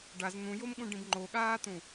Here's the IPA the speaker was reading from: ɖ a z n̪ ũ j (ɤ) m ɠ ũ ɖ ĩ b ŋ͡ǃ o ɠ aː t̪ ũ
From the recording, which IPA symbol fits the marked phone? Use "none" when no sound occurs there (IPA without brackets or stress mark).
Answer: o